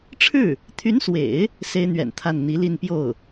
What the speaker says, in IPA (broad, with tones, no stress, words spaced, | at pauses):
ʈ͡ʂʰɻ̩˥˩ | t̪ʰy˧˥nswḛ˨˩˦ɪ̯ | se˥ɪ̯n̪ɥɛ̰˨˩nt̪ʰa˥˩n n̪i˧˥li˥˧n pjo˥˩ʊ̯